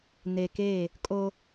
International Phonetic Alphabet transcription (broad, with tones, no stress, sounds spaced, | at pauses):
n e˨ k e˦˨ | kʼ o˦